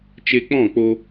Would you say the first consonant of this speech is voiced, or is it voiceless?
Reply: voiceless